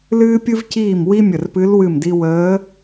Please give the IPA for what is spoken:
l ɨː˥ pʲ ɨ˥ v c iː˥˩ m w i˥ mʲ ə˧˩ r p ɨ˧˥ l w ɨ˥˩ m d i˥ w əː˧˥

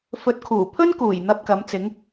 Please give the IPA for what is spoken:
f ɵ˨˥ t̚ kʰ uː˨˩ pʰ ɵ˥ n k uː˨˩ j n̪ ɐ˥ p̚ k ɐ˨˥ m t͡s ɪ˨˥ ŋ

